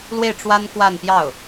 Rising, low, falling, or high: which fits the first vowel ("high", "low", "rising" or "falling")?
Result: falling